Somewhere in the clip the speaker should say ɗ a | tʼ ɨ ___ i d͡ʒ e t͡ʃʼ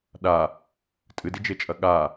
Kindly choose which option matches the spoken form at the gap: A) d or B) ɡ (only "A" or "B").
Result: A